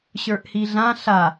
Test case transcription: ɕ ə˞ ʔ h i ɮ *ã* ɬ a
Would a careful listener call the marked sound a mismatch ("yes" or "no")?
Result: no